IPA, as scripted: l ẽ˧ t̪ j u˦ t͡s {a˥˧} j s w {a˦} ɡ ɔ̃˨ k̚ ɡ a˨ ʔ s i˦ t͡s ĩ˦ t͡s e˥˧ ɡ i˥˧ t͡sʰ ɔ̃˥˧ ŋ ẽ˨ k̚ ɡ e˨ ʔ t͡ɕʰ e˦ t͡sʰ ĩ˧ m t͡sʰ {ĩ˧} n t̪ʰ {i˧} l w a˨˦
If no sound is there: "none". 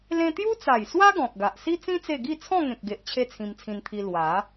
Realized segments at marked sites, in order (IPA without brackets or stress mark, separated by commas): a˨˩, a˦, ĩ˧, i˧